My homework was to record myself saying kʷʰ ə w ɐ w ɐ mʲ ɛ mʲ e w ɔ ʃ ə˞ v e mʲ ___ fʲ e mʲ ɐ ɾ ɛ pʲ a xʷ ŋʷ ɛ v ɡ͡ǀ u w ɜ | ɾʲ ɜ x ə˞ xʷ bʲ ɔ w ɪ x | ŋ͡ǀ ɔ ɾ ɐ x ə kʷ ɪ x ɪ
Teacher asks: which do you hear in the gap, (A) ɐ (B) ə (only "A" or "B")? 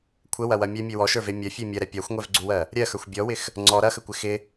A